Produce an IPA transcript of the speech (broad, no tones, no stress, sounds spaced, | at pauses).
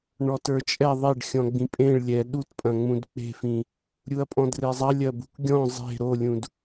ɳ ɔ t ə˞ t͡ʃʼ ɛ ðˤ e ɖ xʲ ɔ̃ ɡ͡b ĩ pʼ ẽ ɭ lʲ ɛ ɗ u t pʼ ɐ̃ ŋ͡m ũ d k͡p e̤ f ĩ | ɾʲ u ɐ̯ pʼ ɔ̃ d r e zˤ ɐ lʲ ɐ b ṳ k ɡʲ ɔ̃ zˤ e̤ ɾ o lʲ ũ d